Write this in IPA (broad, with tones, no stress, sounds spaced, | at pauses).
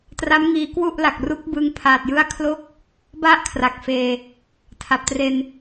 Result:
t r a˦˥ m ŋ iː˧ k w u˥˩ ʔ l a˨˩ k̚ r u˦˥ k̚ b ɯ˧ ŋ pʰ aː˨˩ t̚ j ɯ˦˥ a̯ kʰ l o˦˥ k̚ | b a˥˩ ʔ kʰ r a˨˩ k̚ f eː˧ | tʰ a˨˩ p̚ t r e˧ n